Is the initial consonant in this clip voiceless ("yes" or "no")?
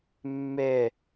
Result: no